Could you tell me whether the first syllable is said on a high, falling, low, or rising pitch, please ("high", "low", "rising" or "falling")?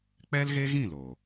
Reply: high